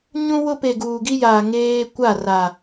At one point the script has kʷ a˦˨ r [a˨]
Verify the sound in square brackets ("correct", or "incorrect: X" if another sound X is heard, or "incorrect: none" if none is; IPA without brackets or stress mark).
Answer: correct